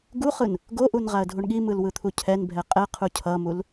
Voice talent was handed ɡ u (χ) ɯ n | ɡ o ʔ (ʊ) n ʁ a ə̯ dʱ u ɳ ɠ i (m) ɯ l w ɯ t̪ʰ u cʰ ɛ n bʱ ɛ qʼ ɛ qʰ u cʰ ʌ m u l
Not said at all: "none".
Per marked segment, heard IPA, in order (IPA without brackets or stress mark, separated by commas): χ, u, m